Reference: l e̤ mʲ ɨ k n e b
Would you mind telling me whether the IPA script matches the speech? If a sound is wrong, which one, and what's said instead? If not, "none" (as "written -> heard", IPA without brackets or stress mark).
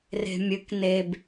l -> r